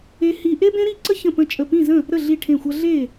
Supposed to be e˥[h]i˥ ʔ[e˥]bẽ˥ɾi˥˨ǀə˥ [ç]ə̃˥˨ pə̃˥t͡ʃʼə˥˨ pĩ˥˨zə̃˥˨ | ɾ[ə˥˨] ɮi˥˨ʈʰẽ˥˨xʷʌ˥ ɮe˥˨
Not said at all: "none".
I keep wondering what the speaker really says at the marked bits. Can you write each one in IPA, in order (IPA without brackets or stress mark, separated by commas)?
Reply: h, e˥, ç, ə˥˨